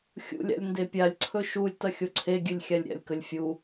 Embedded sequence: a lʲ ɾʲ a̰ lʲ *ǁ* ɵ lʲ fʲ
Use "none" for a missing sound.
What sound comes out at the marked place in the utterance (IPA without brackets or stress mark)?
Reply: k